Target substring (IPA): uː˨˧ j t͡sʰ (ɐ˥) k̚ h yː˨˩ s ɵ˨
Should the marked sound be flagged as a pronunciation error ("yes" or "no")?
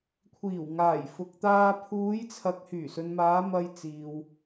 yes